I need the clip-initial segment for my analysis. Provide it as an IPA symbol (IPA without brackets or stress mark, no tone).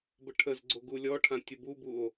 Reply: b